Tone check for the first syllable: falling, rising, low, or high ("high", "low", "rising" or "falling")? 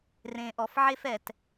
low